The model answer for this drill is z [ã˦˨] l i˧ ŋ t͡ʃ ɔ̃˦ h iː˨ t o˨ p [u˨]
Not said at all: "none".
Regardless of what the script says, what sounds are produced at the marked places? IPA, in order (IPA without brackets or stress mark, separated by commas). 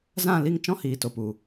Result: ã˦˨, u˨